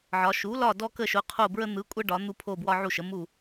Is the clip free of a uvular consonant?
no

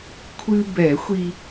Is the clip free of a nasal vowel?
yes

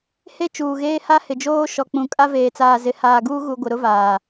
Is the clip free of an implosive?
yes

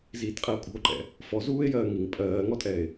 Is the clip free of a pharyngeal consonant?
yes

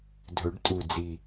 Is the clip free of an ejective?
no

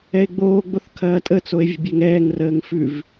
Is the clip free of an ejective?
no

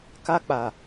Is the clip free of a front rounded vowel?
yes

